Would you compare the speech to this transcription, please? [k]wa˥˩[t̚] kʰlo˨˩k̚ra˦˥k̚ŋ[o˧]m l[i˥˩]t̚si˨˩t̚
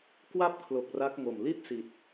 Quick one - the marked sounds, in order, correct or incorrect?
correct, incorrect, incorrect, correct

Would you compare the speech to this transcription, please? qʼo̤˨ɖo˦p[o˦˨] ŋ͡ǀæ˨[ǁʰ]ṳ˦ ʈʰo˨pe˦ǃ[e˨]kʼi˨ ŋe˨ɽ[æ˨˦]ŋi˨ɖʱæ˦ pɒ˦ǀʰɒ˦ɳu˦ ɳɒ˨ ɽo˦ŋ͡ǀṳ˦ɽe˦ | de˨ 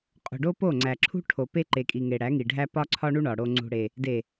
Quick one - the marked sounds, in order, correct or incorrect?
correct, correct, correct, correct

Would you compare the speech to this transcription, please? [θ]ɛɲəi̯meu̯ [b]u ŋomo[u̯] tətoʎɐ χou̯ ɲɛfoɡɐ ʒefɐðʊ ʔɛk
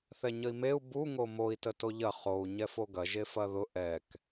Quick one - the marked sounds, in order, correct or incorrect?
correct, correct, incorrect

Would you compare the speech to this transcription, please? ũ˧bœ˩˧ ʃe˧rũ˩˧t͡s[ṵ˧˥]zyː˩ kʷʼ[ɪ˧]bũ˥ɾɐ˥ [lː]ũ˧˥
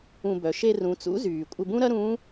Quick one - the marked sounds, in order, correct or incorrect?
correct, correct, incorrect

